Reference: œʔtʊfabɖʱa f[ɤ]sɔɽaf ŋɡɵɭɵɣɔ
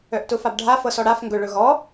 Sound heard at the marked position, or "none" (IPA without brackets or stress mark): ɤ